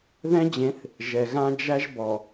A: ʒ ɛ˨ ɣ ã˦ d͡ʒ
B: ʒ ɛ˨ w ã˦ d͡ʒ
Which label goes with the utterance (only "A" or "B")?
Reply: A